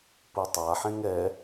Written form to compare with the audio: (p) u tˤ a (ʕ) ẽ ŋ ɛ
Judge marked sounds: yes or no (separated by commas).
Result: yes, no